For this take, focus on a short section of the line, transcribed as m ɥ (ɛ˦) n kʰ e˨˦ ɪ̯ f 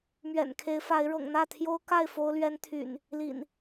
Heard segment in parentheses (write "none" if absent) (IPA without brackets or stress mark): ɛ̰˨˩